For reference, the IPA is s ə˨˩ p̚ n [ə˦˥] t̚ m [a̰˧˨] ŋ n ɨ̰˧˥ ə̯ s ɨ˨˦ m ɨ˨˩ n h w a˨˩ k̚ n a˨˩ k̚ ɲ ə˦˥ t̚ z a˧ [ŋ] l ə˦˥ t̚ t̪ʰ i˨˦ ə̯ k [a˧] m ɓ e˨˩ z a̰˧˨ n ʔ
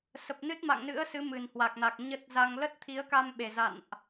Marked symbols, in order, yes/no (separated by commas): no, yes, yes, yes